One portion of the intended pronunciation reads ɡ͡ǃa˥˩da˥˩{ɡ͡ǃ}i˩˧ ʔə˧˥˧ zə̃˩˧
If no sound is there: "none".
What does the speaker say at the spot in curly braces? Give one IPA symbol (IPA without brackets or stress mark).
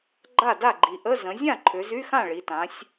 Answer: ɡ͡ǃ